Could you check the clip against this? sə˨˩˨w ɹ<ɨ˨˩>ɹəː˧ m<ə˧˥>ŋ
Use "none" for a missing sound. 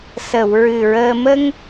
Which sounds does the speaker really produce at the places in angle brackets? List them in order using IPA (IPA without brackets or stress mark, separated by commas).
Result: ɨ˨˩, ə˧